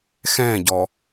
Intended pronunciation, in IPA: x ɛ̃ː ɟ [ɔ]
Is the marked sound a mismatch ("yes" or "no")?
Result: no